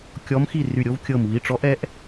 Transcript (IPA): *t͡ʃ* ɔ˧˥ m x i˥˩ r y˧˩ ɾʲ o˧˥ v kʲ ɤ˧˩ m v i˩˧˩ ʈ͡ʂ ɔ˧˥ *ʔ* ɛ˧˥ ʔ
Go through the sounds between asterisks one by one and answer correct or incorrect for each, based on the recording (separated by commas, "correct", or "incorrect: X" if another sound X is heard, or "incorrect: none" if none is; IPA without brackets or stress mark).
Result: incorrect: kʲ, correct